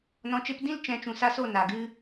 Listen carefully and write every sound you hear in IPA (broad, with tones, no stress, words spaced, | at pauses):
nɔ̃˧t͡ʃe˦p dĩ˦l t͡ʃɛ̃˨˦t͡ʃũ˨ sa˦so˦˨ na˨ ɡɨ˧